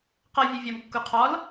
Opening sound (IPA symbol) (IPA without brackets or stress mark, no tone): q